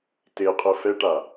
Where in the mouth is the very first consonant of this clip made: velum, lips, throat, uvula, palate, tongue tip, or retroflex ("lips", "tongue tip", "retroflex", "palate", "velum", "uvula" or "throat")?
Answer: tongue tip